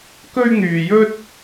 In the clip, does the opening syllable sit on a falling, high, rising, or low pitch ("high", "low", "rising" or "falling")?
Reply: high